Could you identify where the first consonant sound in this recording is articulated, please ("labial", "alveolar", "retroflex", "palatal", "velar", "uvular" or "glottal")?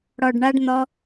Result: retroflex